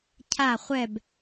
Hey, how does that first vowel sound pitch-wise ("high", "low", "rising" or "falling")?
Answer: falling